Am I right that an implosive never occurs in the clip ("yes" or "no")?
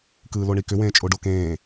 yes